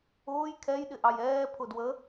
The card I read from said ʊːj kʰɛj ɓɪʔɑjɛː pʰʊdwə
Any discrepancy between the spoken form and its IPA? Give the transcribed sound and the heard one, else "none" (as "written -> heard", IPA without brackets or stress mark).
ɓ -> ɗ